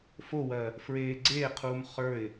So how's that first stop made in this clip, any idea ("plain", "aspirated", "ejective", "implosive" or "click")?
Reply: click